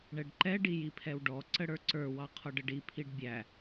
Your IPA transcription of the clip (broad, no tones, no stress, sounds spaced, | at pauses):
ɳ ɛ ɖ ǃ ɛ ɖ i j i pʰ ɛ w ɖ ɔ ǀ ə ɽ ə˞ ǀ ə˞ w ɑ qʰ ɔ ɖ ə ɖ i pʰ i ɖ bʲ æ